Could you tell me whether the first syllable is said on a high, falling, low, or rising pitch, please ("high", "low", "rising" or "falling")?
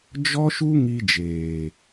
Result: high